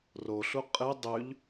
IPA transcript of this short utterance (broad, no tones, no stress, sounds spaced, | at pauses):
r o ɬ u qʼ ɨ dˤ ʉ ʎ